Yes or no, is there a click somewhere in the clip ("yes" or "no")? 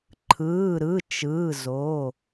yes